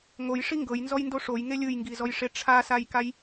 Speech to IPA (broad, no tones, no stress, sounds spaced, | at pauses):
ŋ o j ʂ i ŋ ɡ ɤ j n z ɔ j n d o ʂ o j ŋ e lʲ ɯ j ŋ ɡ i z ɔ j ʂ e ʈ͡ʂʰ a s a j k a j